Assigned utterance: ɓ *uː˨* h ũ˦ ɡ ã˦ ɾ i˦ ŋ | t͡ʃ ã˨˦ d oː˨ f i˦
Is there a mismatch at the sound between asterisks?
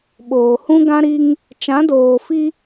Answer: yes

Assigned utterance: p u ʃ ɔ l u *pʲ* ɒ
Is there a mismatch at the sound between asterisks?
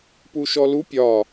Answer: no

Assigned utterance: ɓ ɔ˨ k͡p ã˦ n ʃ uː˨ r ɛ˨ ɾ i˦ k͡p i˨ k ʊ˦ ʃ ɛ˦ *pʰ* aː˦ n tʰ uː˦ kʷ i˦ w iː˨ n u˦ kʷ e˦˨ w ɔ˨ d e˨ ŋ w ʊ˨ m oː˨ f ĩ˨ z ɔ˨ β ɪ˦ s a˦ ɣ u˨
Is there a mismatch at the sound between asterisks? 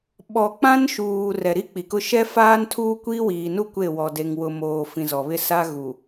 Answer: yes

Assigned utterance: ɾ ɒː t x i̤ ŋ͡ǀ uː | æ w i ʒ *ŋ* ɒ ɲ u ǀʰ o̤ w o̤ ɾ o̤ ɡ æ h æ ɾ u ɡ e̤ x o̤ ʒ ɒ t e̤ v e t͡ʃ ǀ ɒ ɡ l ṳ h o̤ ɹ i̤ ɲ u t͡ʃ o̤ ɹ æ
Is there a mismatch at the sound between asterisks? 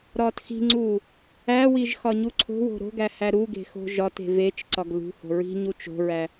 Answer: yes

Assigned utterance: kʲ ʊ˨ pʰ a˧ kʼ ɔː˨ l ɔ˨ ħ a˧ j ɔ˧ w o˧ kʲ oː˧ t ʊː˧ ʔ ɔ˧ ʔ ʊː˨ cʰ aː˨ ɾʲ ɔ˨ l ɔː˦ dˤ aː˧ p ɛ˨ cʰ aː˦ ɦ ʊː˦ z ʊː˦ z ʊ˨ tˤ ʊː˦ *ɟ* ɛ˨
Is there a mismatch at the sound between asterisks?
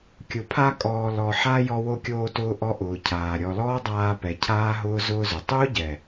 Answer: no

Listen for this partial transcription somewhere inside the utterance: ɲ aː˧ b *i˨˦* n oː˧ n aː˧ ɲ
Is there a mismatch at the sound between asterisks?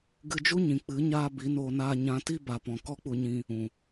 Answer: no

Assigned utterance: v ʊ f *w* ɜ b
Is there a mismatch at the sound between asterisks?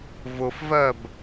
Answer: yes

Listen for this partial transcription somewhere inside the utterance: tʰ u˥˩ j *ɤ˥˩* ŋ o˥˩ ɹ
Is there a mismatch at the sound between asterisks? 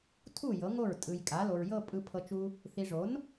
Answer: yes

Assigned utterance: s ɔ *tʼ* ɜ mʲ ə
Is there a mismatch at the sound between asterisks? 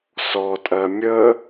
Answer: no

